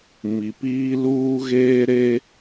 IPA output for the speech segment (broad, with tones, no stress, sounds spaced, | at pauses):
m i˨ p iː˦ l uː˦ ɣ eː˦ ɾ e˦